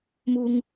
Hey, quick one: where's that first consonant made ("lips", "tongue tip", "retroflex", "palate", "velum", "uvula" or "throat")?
lips